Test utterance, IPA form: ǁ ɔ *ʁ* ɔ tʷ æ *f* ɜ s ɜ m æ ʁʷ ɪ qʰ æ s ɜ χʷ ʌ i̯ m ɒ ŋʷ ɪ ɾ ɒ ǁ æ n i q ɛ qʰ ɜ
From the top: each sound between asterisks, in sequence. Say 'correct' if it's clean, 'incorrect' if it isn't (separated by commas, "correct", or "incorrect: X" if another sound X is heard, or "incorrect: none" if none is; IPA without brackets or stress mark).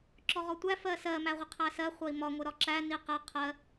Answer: correct, correct